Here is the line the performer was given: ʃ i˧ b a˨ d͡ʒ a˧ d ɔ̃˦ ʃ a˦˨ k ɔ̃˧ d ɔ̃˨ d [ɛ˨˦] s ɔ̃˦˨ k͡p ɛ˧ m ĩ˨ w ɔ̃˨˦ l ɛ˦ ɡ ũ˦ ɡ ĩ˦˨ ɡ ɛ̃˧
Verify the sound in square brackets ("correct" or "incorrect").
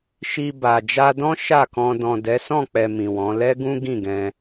correct